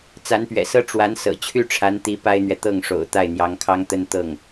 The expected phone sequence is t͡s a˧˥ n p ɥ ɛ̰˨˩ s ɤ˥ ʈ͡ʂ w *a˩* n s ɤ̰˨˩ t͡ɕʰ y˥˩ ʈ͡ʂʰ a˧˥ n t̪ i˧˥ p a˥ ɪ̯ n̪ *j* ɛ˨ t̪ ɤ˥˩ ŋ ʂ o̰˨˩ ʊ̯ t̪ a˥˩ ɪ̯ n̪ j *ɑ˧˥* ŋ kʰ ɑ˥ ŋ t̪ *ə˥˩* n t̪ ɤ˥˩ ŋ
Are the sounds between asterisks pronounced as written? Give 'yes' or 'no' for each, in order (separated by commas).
no, no, yes, no